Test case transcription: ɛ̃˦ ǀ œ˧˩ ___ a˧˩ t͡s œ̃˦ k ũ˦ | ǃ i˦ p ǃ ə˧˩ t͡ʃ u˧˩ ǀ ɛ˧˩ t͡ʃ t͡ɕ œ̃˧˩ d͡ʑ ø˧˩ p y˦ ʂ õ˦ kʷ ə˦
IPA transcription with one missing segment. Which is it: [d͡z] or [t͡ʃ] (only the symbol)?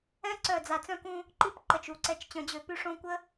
d͡z